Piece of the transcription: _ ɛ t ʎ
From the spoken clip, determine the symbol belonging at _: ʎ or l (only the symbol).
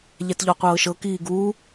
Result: ʎ